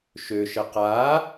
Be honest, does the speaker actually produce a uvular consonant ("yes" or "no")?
yes